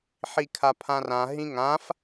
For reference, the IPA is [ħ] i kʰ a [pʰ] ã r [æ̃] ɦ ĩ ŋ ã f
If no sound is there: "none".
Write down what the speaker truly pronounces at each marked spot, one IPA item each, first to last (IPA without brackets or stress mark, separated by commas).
ħ, pʰ, ã